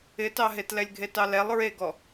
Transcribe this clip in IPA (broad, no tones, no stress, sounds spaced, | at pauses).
ɪ t ɑ ɦ e t l ɛ lʲ ɡʱ e t ɑ l ɛ lˠ ɹ e ɡ ɔ